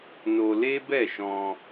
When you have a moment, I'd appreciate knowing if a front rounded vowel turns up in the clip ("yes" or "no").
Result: no